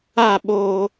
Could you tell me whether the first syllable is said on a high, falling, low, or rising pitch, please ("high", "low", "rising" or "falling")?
falling